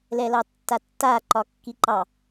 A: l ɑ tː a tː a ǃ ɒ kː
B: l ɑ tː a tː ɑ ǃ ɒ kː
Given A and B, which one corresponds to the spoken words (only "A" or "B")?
A